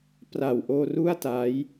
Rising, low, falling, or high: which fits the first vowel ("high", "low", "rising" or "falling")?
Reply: low